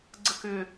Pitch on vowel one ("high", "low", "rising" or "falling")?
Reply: falling